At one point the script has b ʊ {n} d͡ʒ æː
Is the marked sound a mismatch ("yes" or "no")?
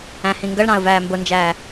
no